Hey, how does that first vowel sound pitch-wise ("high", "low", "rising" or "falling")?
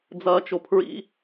high